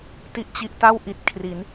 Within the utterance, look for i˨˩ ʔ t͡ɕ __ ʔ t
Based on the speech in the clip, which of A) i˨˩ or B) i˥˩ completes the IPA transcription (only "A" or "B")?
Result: A